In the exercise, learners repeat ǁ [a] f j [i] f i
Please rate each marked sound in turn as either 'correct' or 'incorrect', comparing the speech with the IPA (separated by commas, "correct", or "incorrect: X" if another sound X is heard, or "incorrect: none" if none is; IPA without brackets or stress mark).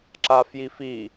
correct, correct